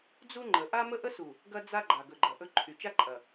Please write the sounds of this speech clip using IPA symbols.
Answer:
d͡z u˦ ŋ͡ǃ ə˨ ʔ a˦ m ə˦ ʔ ə˦ s u˨ | ɡ ɐ˦ d͡z a˦ ɡ͡ǃ a˨ ɡ ɵ˨ ɡ͡ǃ ɐ˨ ʔ ɵ˦ ǃʰ y˨ t͡ʃ a˦ ǃʼ ɐ˨

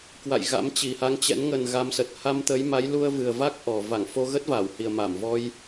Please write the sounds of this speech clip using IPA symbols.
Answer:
k w a̰˧˨ j ɣ a̰˧˥ m t͡ɕ i˨˩ h a˧ ŋ t͡ɕ ɛ̰˧˥ n ŋ ə˨˩ n ɣ a˨˦ m s ə˨˩ t̚ h a˧ m t̪ ə˨˦ j m a˨˦ j l u˧ ə̯ v ɨ˨˩ ə̯ v a˦˥ k̚ ʔ ɔ˨˩ v a˧˩ ŋ f o˧ ɣ ə˦˥ t̚ v a˧˩ w h i˨˩ ə̯ m a˧˩ m v ɔ˧ j

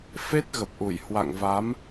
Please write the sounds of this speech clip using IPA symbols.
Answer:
f e˦˥ t̚ ɣ ə˨˩ p̚ ʔ u˧˩ j h w a̰˧˨ ŋ v a˨˦ m

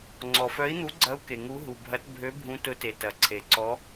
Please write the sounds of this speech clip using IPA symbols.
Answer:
ŋ͡ǀ ɔ˩ f œ˨˥ i̯ n̪ u˨˥ ɡ͡ǀ ɐ˨˥ u̯ k e˩ ŋ u˨˥ ɦ u˩ bʱ ɐ˨˥ t bʱ ø˨˥ bʱ ũ˨˥ t ʊ˨˥ t e˩ t ɐ˩ ǀʰ e˩ ǀ ɔ˨˥

